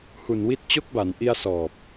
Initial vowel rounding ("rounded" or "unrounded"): rounded